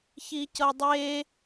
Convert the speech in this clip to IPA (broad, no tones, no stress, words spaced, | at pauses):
çicɤdˤe